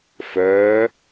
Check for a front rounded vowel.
present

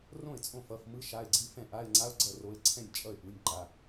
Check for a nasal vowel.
present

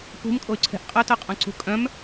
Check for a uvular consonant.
present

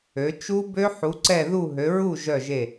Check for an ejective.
absent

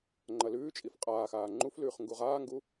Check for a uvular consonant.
present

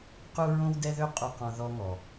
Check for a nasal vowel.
present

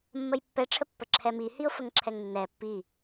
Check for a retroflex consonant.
present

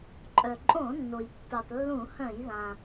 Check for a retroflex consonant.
absent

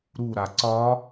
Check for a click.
present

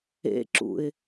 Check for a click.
present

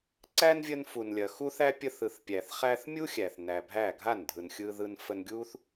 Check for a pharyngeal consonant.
absent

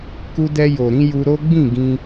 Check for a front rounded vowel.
absent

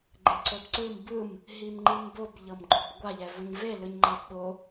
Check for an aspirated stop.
absent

